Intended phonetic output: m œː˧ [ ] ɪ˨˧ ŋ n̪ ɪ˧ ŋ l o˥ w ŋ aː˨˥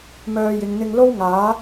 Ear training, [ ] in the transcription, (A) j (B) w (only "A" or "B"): A